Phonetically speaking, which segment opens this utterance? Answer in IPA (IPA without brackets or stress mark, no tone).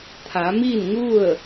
t̪ʰ